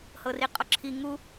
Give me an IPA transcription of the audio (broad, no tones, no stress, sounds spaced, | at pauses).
h ɤ r i qʼ ɔ ǁʰ i ŋ u